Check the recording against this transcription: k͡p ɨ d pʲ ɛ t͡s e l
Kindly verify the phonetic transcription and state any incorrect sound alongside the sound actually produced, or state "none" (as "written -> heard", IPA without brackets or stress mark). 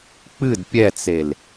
none